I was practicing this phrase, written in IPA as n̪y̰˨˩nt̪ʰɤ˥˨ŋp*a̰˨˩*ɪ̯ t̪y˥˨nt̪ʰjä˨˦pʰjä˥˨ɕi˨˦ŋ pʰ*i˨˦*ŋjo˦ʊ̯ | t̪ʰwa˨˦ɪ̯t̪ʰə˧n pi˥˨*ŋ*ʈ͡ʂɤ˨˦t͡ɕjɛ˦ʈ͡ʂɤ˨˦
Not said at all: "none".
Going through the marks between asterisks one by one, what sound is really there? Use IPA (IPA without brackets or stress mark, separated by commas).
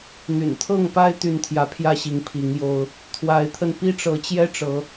a˦, i˨˦, none